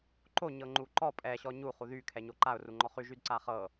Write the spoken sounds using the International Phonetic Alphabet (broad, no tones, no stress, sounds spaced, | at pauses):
ǃ o ɲ ɤ ŋ͡ǃ u ǃ ɔ pʼ ɛ ɕ ɔ ɲ u χ u ð y kʰ ɛ ɲ o ǃ a ʊ̯ r u ŋ͡ǃ ɔ χ y ʒ y d ǀ a χ ɤ